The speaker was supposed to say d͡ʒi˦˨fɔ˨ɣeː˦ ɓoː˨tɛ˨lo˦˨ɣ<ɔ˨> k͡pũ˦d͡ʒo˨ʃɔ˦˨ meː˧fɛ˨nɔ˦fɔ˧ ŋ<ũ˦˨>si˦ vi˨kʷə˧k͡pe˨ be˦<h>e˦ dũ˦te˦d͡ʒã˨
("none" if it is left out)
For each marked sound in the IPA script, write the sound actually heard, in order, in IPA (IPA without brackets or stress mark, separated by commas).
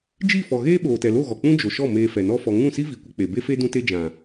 ɔ˨, ũ˦˨, f